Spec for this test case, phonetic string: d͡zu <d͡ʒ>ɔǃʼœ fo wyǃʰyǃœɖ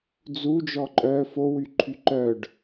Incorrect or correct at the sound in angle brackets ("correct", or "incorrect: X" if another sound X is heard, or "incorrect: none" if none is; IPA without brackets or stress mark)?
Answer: correct